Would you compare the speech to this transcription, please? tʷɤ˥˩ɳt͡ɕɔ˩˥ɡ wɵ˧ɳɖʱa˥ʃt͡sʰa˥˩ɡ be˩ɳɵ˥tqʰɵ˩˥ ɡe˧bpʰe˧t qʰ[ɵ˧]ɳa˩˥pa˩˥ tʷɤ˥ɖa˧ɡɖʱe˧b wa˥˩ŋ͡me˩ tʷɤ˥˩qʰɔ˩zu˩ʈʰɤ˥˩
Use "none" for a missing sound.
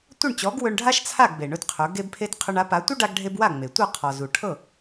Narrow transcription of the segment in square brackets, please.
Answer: ɵ˧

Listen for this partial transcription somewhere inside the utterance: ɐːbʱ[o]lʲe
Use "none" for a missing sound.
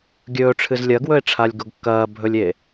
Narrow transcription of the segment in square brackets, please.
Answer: ɵ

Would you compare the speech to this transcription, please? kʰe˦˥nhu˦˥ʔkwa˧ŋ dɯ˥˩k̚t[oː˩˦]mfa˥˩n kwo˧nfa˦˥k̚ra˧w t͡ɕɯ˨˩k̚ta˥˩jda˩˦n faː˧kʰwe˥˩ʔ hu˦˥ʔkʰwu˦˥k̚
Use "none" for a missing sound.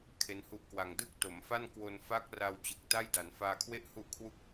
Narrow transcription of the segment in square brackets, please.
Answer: o˩˦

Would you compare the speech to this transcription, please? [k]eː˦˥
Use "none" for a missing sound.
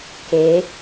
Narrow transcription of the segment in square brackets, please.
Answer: k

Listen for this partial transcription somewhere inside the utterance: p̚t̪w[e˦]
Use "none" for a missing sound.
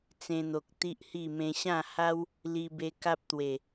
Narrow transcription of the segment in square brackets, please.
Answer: e˨˩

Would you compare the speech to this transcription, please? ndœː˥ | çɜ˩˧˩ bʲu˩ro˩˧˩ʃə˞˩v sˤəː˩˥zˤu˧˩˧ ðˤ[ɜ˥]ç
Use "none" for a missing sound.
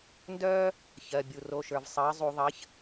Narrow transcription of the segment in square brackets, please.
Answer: ɜ˩˥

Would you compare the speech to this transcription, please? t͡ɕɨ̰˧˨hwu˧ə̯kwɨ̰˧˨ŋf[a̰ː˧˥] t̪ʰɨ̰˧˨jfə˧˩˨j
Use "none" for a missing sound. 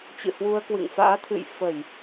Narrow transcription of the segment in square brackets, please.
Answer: a̰ː˧˥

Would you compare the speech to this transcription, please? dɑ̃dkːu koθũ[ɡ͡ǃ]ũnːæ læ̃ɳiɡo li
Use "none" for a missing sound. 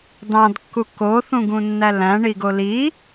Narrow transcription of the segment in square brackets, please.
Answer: ɡ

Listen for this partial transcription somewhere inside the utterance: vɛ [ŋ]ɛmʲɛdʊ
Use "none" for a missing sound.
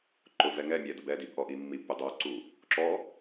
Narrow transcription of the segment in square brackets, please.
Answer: ŋ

